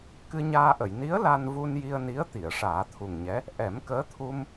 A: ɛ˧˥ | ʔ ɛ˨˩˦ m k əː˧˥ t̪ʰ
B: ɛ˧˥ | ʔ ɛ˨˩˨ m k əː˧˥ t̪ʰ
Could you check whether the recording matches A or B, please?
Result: A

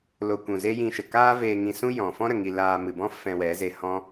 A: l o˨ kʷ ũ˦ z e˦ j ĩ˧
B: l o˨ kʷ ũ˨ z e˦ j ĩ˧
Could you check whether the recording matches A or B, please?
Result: B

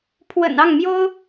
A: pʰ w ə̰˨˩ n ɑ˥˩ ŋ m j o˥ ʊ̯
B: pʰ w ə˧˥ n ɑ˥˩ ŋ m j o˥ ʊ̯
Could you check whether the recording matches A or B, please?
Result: A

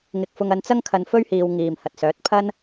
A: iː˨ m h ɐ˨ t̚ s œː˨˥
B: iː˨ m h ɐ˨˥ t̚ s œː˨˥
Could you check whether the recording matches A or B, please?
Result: A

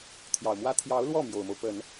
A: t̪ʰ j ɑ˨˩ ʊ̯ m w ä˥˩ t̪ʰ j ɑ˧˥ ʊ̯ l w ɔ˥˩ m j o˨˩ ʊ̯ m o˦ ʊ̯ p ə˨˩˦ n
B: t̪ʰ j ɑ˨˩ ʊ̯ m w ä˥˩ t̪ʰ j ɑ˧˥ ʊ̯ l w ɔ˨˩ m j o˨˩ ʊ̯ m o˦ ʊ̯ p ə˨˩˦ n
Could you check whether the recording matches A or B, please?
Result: A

